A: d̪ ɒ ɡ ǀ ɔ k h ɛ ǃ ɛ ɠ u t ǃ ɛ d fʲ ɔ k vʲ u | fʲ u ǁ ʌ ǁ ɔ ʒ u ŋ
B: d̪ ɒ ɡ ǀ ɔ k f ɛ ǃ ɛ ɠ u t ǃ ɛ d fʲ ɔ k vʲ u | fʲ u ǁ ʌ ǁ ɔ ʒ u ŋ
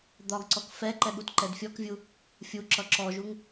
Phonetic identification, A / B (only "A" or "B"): B